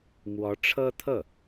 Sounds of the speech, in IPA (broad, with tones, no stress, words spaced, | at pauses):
mwɔ˧˥ʈ͡ʂʰɤ˥ t̪ʰɤ˥˩